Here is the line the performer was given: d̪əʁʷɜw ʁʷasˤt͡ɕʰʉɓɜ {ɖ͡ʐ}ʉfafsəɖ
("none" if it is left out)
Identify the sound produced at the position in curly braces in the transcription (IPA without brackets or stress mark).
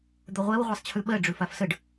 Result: ɖ͡ʐ